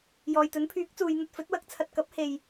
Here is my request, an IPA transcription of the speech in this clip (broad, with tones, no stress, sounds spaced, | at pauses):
j ɔː˨ j t̪ ɵ˨˥ n pʰ yː˨˥ k̚ t͡s uː˨˧ j n̪ ɐ˧ t̚ f ɵ˨˥ t̚ w ɐ˨˥ k̚ t͡sʰ ɐ˧ t̚ k ɐ˨˥ p̚ h e˨ j